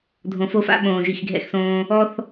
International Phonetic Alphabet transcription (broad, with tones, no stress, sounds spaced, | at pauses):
dʱ õ˧ f o˦ f a̰˦ ɓ õː˨ ʒ i˨ x ɡʱ ɛ̰˧ x s õː˧ | ɔ˦ θ